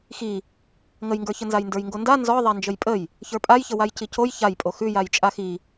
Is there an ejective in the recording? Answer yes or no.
yes